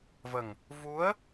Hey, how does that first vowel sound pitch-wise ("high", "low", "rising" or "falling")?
low